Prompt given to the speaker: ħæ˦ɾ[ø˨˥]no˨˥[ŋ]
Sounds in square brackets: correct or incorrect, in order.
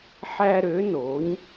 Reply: correct, incorrect

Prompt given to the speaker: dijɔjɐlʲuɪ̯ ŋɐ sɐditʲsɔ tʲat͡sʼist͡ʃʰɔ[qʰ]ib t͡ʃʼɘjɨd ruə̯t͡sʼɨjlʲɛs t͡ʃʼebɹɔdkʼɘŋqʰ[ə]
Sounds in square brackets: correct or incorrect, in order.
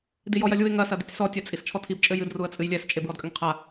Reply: incorrect, incorrect

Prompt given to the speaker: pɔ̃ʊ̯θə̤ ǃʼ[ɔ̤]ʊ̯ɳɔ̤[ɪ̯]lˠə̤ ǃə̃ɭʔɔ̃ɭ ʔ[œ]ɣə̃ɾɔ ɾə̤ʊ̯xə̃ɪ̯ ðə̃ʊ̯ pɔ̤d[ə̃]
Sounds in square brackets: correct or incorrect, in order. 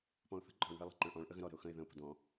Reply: correct, correct, incorrect, incorrect

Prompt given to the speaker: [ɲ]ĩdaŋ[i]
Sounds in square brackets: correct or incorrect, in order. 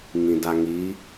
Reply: incorrect, correct

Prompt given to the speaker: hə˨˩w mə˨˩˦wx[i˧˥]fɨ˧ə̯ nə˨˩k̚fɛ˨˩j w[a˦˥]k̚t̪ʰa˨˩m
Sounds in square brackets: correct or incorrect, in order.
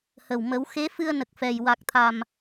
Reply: incorrect, incorrect

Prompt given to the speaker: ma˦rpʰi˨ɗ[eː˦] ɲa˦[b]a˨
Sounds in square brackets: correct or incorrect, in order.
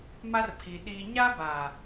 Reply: incorrect, correct

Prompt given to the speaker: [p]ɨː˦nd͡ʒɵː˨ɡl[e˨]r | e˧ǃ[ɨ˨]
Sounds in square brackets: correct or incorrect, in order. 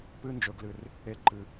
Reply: correct, incorrect, correct

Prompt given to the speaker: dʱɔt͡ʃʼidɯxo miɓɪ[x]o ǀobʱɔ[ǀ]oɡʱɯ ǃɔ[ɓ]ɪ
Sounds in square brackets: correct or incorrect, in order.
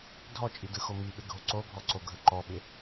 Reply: incorrect, correct, correct

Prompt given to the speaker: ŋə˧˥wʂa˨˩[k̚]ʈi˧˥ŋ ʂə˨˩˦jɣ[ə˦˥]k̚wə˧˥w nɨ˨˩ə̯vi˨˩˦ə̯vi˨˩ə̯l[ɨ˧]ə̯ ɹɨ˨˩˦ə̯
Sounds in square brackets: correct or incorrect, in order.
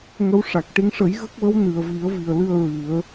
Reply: correct, correct, correct

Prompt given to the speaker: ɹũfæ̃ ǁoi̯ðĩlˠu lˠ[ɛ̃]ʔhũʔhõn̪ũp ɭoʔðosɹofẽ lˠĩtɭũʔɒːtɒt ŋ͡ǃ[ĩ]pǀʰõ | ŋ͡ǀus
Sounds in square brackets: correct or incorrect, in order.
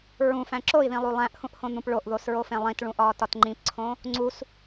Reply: incorrect, correct

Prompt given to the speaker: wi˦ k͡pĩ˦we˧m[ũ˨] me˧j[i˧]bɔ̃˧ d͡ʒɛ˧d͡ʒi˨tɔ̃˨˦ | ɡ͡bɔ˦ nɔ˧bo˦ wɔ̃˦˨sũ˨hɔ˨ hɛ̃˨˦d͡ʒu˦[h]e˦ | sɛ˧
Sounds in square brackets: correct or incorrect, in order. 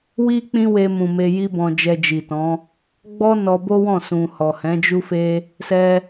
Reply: correct, incorrect, incorrect

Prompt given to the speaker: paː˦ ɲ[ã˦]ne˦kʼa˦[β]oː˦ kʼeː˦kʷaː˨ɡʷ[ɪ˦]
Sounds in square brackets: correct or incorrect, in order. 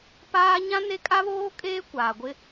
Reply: correct, correct, correct

